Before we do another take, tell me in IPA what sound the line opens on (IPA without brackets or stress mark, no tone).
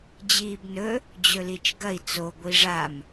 d͡ʑ